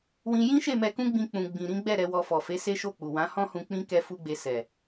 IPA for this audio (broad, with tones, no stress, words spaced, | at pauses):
wĩ˧ jĩ˦ʃe˦˨mɛ˧kũ˦ ɡ͡bĩ˧k͡pũ˨ ɡ͡bĩ˨ɾĩ˨˦ɡ͡bɛ˦˨ ɾɛ˨˦wɔ˧fɔ˨ fe˨˦ se˦ʃo˦˨k͡pu˨ wã˨˦ hɔ̃˦hũ˧k͡pĩ˦ kɛ˦fu˦ɡ͡be˧ sɛ˨